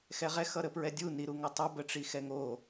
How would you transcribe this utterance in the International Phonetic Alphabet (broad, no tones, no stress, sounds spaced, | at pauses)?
x ɛ ʁ ɛ x ʌ ɾ ə p ɹ ɛ dʲ u n i ɾ u ŋ ʌ tˤ ʌ b ə ʈ͡ʂ i x ɛ ŋ o